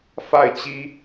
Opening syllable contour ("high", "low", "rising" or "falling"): falling